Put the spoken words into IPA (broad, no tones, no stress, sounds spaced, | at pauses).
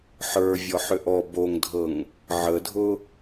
ħ ə˞ vʲ ɔ ħ ʏ ʔ ɔ b o ŋ dʱ ɤ ŋ | ʕ ə dʱ ʊ